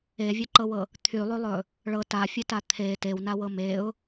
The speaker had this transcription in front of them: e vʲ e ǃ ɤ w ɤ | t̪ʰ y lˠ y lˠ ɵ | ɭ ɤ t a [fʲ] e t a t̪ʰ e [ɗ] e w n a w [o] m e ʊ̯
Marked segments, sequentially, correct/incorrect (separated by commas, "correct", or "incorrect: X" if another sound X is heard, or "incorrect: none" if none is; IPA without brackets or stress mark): correct, incorrect: t, incorrect: ɤ